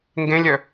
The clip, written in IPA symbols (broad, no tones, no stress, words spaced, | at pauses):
ŋɡẽlʲœ